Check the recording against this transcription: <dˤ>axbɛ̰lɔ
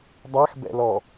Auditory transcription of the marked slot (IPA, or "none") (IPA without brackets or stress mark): dˤ